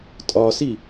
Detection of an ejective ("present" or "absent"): present